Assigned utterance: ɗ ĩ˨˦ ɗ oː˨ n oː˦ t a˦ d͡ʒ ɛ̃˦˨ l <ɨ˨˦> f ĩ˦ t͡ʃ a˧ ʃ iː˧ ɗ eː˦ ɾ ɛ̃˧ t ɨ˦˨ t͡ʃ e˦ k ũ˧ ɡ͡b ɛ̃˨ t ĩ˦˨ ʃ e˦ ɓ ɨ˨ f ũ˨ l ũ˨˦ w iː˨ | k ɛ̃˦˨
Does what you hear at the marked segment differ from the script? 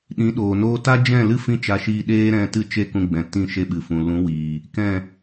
yes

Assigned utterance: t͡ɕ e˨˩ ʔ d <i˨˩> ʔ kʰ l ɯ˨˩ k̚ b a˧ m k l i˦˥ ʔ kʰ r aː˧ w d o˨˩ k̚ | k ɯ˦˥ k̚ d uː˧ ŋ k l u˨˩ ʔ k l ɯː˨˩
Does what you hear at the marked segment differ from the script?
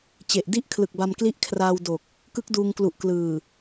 yes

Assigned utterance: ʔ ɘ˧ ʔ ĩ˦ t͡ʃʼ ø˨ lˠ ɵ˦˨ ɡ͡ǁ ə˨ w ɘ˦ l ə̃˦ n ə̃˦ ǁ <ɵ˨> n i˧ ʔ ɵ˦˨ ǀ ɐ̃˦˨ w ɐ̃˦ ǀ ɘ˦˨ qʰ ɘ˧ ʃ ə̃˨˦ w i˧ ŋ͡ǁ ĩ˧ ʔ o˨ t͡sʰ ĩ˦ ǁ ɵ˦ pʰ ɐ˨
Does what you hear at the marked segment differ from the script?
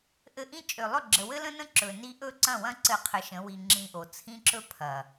no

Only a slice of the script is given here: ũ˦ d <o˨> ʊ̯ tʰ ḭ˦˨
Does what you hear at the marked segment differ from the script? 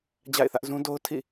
yes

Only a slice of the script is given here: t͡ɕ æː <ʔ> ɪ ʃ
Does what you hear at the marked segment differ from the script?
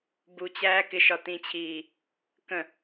yes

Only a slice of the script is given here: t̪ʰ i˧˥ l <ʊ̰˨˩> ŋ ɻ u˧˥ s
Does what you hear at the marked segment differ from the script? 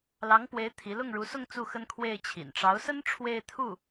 yes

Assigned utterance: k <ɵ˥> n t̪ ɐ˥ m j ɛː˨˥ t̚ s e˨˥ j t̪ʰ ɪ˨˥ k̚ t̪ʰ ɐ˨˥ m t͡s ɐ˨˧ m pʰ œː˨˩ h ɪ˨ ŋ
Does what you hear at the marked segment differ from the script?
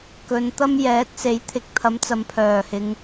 yes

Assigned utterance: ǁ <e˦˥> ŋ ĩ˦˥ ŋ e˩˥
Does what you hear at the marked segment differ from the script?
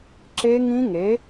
no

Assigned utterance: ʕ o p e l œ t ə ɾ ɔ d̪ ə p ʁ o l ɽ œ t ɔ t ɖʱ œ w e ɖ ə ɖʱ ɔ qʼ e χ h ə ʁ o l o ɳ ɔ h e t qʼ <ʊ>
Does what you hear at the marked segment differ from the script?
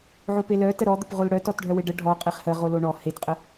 yes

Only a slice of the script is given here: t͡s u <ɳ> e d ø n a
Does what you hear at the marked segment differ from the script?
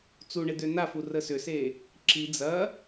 no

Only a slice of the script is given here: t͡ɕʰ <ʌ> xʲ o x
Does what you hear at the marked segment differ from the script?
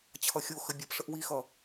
no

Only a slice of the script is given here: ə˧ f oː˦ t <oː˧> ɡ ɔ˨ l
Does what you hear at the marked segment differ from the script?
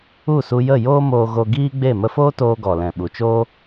no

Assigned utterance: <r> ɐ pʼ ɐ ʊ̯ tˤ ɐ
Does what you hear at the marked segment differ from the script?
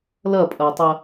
yes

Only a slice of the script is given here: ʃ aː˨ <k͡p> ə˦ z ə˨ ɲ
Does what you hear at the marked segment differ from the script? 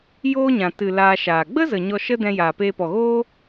yes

